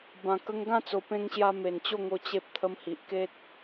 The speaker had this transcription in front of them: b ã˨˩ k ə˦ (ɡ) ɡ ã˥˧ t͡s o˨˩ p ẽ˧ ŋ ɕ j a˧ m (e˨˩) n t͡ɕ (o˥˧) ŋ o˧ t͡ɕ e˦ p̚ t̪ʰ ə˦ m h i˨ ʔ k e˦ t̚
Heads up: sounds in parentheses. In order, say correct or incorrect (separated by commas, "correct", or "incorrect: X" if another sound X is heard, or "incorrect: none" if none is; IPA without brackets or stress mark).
incorrect: ŋ, correct, correct